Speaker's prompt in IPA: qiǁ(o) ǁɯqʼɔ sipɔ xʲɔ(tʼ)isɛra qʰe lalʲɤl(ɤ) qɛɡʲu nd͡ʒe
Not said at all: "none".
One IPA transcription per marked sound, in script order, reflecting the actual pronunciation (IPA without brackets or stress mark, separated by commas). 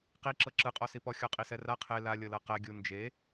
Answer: ɤ, qʼ, ɤ